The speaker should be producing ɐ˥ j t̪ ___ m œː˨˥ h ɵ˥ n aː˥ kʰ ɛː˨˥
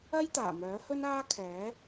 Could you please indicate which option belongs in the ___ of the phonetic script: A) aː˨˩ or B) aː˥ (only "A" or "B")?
A